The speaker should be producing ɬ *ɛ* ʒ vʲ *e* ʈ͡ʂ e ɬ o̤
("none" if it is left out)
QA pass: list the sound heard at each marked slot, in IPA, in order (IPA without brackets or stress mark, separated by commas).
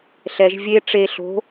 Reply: ɛ, e